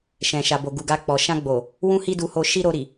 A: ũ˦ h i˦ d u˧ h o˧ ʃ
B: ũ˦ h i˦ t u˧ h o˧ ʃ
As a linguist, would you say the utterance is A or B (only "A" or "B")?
A